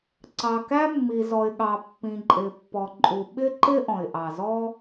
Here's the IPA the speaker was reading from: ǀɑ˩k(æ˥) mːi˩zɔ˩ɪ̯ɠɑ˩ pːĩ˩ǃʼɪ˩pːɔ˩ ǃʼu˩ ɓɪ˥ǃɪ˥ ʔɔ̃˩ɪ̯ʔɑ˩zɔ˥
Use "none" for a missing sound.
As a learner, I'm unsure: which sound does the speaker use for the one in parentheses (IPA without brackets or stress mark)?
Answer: æ˥